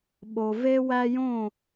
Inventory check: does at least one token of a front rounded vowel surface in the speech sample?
no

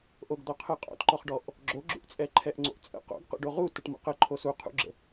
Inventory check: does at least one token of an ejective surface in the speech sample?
yes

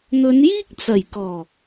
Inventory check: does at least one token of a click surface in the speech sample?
no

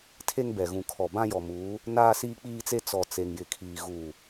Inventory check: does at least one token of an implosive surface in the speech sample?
no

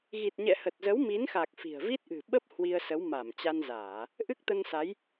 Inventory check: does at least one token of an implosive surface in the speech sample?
yes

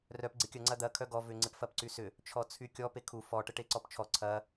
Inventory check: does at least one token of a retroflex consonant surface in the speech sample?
yes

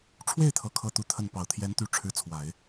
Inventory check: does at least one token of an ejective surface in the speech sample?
no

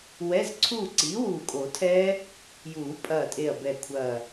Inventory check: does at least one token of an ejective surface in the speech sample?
yes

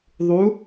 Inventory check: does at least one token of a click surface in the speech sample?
no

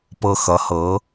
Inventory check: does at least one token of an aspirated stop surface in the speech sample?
no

